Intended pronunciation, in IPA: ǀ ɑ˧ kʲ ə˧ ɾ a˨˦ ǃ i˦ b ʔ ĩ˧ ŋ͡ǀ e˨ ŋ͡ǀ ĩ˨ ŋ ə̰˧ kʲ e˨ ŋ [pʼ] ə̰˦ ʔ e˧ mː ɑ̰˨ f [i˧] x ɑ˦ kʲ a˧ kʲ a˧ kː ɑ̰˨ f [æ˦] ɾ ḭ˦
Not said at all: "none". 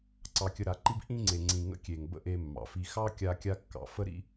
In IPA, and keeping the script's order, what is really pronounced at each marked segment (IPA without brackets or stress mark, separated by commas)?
b, i˧, ə˦